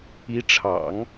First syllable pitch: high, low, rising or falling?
rising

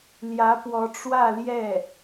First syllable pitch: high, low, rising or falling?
rising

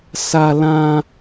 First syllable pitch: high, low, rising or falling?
high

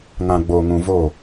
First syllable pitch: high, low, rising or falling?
low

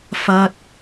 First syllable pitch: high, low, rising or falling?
high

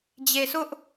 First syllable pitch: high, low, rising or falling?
low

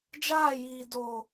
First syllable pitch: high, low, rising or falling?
falling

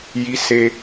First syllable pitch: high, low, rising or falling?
high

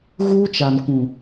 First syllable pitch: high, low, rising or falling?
high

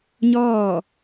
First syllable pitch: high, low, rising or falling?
falling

